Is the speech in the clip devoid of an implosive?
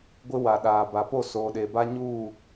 no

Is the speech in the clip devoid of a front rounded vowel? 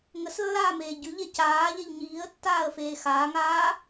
yes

